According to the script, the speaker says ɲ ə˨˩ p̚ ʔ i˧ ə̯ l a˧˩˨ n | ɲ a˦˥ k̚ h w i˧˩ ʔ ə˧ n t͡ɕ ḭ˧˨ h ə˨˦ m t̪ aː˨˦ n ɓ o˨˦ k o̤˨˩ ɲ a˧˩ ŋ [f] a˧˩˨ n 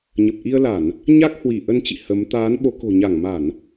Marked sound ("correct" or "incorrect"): incorrect